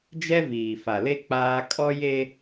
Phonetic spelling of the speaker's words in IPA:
d͡ʒ ɛ˦ v iː˨ f a˨ l e˦ k͡p aː˦ kʼ ɔ˦ j e˦

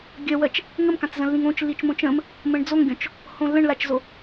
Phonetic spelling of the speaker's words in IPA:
ɡʲ ɜ w ɜ t͡ʃ | ŋ ə m k ã t͡s z ə̃ lː ĩ ŋ õ t͡ʃ lː i t͡ʃ m õ t͡ʃ ə̃ m | m ə̃ ɳ d͡z o ŋ ɡʲ ɔ̃ t͡ʃ | h õ lː ə̃ ɳ l a t͡ʃ z o

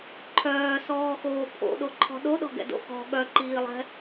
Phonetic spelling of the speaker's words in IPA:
ǃʰ œː s ɔː x oː pʰ o̰ ɗ o ǃʰ ɔ̤ ɗ o ɗ ɔ̤ ɡ ɛ̰ d o̰ x ɔ̤ ɠ œ ǃ iː lˠ ɛ̤

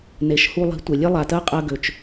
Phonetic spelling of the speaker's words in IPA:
n e˨ ʃ h u˧ lˠ i̤˨˦ tʷ e˨ lʲ e˦ lˠ a˨ t ɜ˦ qʼ ɜ˧ ɡ ø˨ t͡ʃ

